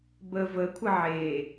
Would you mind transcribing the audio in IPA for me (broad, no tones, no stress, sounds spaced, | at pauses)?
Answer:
b ə v ə kʷʰ ə ʕ e